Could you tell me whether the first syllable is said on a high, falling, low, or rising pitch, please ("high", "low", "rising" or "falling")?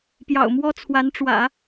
low